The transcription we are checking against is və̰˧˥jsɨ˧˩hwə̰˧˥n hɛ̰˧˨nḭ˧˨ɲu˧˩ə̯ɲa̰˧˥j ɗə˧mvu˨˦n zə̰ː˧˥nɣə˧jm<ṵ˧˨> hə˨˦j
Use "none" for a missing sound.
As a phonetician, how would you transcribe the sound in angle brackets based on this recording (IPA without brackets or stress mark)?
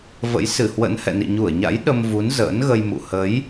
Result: ṵ˧˨